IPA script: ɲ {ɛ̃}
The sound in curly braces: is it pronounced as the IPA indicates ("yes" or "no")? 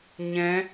yes